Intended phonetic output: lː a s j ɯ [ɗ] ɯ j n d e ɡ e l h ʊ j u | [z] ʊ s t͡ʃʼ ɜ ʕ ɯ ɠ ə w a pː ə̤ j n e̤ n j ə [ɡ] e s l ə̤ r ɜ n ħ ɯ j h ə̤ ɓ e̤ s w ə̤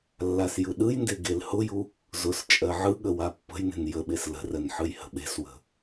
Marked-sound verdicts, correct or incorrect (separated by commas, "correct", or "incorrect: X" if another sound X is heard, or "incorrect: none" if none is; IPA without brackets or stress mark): correct, correct, incorrect: ɓ